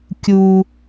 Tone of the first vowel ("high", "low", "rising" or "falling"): low